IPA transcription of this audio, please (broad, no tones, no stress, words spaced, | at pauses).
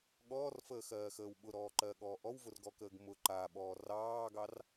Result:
ɠɔːrfəːxɜːxəːw ɓʊɾɔːǃɜɠɔː ʔɔwvʊrɡɔkəːɡ mʊ ǃaɓɔː rɑːɡɑr